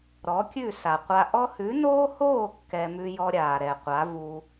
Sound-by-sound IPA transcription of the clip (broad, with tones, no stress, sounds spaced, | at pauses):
ɾ ɔ˨˦ kʲ ʉ˦˨ s a˨ qʷ a˧ ʔ ɔ˧ h ʉ˨˦ n oː˦ h oː˦˨ kː ɛ˧ m ʉ˦ j ɔ˦ ɾʲ aː˨ ɾ ɛ˨ qʷ a˨˦ v u˧